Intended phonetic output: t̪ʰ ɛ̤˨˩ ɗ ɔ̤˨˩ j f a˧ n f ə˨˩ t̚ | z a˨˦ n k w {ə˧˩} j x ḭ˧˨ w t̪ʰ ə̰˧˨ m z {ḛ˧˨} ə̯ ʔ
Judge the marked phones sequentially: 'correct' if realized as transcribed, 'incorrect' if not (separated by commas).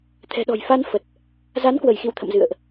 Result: correct, incorrect